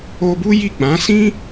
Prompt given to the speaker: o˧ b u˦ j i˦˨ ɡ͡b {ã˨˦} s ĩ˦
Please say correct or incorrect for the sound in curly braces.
correct